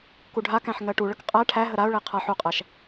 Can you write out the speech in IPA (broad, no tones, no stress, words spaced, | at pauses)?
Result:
kuɖʱakæ̃ħ ŋɜʈuɭək qʼæ ʈʰæɦə ɾaʊ̯ɭe qʰaħ uqʼæʃ